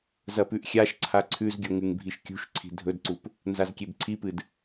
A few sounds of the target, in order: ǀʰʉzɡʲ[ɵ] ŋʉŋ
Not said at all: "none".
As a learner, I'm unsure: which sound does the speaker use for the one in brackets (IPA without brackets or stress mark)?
o